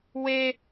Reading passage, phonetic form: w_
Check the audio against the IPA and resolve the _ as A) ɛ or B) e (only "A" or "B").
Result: B